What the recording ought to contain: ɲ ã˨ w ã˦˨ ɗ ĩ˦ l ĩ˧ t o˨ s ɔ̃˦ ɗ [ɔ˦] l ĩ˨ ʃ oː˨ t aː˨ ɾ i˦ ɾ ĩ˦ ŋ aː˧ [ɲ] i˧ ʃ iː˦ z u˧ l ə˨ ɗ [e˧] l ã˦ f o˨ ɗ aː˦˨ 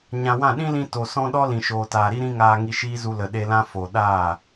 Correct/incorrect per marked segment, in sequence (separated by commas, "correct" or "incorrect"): correct, incorrect, correct